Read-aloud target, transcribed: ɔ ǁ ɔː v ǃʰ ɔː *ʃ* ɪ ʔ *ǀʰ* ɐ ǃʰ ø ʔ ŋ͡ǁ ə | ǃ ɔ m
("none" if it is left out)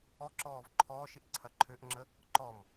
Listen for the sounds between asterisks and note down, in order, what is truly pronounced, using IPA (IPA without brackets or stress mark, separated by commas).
ʃ, ǀʰ